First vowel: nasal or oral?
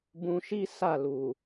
nasal